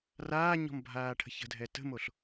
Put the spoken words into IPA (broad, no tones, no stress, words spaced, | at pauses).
raːɲɔ̤mbʱaːʈʰə̤ çə̤dʱɛ tə̤moɬ